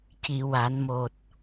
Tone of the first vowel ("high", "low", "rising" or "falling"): low